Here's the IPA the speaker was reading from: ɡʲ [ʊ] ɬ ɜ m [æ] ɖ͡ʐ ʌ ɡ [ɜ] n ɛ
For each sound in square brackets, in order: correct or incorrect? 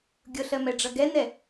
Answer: correct, incorrect, incorrect

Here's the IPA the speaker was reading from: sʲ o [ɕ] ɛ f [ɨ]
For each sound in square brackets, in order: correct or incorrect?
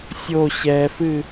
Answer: correct, correct

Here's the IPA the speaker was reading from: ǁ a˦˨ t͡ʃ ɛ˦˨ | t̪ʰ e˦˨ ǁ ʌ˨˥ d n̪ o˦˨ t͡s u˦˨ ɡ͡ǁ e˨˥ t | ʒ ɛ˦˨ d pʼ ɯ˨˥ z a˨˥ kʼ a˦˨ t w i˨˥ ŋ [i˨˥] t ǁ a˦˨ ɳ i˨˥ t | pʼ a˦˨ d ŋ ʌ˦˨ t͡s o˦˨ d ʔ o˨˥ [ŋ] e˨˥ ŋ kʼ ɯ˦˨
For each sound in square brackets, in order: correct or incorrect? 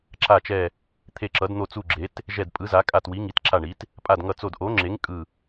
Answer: correct, incorrect

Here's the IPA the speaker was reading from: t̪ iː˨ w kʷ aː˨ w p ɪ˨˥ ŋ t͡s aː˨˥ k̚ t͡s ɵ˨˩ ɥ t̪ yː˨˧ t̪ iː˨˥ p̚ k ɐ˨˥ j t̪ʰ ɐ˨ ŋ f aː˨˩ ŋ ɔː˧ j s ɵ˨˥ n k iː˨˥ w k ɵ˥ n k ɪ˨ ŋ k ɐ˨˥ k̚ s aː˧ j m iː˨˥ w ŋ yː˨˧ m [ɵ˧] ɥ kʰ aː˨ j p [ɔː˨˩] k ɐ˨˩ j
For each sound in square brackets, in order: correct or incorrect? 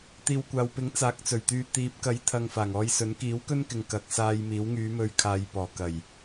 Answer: correct, correct

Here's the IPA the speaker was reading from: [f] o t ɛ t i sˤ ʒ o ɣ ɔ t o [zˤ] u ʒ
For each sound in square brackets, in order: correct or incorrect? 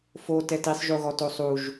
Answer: correct, incorrect

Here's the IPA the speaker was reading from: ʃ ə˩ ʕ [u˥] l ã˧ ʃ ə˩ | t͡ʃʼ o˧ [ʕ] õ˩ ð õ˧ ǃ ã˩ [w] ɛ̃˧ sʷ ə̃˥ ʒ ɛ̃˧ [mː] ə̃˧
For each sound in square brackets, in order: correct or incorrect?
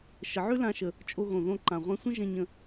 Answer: incorrect, incorrect, incorrect, incorrect

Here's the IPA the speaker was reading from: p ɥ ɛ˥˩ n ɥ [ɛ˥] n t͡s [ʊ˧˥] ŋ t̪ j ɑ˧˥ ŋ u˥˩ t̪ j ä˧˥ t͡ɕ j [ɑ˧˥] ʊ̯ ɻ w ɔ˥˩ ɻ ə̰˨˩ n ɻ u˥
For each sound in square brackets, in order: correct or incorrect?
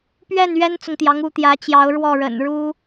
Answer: correct, incorrect, correct

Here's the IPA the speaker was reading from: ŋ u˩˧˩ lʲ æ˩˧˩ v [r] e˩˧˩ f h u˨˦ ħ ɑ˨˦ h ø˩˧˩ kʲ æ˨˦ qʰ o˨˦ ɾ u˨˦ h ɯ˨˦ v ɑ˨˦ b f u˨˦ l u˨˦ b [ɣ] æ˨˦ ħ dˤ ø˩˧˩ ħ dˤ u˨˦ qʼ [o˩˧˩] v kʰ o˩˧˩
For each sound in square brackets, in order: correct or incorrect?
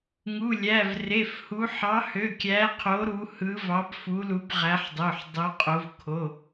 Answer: correct, incorrect, incorrect

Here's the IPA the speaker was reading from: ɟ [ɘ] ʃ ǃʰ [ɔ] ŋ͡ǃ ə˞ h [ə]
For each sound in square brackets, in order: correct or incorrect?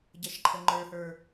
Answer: incorrect, incorrect, incorrect

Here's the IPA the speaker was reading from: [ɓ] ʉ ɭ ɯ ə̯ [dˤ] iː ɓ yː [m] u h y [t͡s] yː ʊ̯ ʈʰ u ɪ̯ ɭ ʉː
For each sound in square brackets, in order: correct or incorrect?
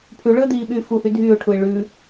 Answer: incorrect, incorrect, incorrect, incorrect

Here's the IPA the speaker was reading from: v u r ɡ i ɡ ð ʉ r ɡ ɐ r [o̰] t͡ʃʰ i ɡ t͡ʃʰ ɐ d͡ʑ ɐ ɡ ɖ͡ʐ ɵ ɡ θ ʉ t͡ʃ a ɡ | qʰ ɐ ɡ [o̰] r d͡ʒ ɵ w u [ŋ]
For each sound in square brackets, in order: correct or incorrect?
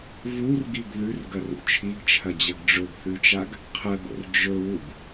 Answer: incorrect, correct, incorrect

